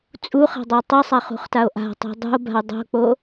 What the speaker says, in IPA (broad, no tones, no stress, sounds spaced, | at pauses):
t͡sʼ u χ a̤ dˤ ɜ tˤ ʌ sˤ a χ ṳ χ t a o̯ ʔ a̤ tˤ ṳ dˤ ṳ o̯ b a̤ o̯ dˤ o̤ k͡p o